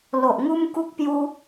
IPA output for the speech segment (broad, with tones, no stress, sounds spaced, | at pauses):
l o˨ ʔ ŋ u˦ m k u˦ k̚ p j u˦